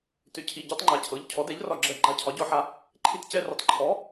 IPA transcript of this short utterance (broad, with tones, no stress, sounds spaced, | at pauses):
t ʏ˨˥ cʰ i˩˧˩ ɟ ɤ˦ tˤ ŋ͡ǃ a˨˥ cʰ ɤ˩˧˩ ʎ cʰ ɔ˨˥ d ɛ˨˥ ʎ r ɒ˦˨ ɡ͡ǁ ɜ˦˨ ɡ͡ǃ a˦˨ cʰ ɒ˨˥ ɟ ɔ˦˨ ħ a˦ | ǃʰ i˦ t c ɛ˦ r ʏ˨˥ tˤ ǃʰ ɔ˨˥